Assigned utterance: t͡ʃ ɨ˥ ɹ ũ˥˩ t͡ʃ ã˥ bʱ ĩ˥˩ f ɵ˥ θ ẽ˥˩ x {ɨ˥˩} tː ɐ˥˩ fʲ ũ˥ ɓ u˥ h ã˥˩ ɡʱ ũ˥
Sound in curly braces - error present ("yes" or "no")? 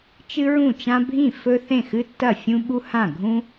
yes